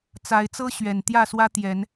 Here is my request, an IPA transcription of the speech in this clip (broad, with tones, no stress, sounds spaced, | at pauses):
t͡s a˨˦ ɪ̯ t͡s ɤ˦ ɕ ɥ ɛ˨˩ n t̪ j ä˥˨ s w ä˦ t̪ j ɛ˨˦ n